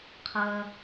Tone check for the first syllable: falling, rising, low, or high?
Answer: high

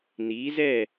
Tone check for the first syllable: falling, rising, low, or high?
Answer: rising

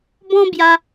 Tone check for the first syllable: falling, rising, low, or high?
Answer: high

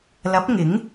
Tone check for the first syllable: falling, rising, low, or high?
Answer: rising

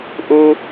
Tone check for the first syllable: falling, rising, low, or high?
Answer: high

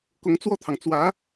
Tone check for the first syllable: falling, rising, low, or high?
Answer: rising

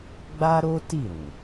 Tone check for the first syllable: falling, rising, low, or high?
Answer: high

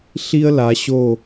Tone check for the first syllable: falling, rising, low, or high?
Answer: high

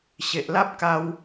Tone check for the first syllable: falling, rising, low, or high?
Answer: low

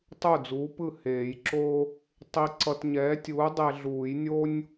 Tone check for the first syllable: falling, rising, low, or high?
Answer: falling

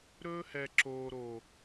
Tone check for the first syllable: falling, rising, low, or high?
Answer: high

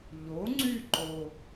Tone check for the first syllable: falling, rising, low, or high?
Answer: rising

